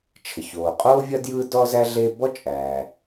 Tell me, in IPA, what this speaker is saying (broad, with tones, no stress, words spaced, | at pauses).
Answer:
t͡ʃʰə˩ çoː˩qʼoː˥vʲɐ˥ djɯː˥dɔ˥zæ˥ ɮe˥ bɔ˥t͡ʃʼæː˩